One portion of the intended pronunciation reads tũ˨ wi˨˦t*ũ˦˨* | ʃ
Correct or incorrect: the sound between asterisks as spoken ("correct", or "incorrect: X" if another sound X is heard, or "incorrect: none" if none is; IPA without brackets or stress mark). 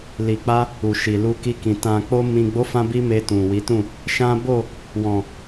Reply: correct